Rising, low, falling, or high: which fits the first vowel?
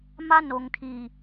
high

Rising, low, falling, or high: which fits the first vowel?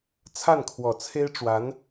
falling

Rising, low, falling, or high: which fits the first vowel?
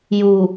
low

